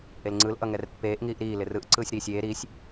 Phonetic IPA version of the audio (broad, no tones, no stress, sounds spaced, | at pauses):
ʔ e l ŋ͡ǀ ɯ l ʔ ʌ ŋ ɛ r pː eː ʔ ŋ iː ʔ ɾ iː l ɪ r ɯ ʔ ǀ ɯː sʲ ɾ iː sʲ eː ɾ i sʲ